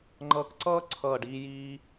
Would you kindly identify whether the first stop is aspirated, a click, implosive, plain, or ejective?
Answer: click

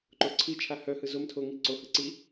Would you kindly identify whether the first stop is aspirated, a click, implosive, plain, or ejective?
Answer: click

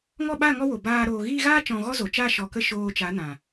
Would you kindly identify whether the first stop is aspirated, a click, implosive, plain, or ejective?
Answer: implosive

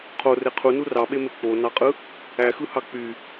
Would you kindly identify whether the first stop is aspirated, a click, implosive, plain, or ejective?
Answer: aspirated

